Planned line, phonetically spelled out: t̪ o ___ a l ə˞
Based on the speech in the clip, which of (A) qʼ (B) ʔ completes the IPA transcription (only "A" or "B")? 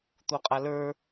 A